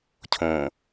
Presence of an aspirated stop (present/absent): present